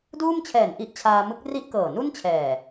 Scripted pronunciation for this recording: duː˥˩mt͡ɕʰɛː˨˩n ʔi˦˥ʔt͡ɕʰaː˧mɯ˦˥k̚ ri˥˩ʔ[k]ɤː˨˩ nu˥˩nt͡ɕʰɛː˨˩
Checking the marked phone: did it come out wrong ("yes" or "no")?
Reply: no